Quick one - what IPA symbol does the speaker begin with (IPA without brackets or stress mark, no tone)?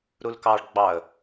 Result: ɾ